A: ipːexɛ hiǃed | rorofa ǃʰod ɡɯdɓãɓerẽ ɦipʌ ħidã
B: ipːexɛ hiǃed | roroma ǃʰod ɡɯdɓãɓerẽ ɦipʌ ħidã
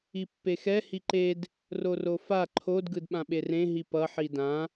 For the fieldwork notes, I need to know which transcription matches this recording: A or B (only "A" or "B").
A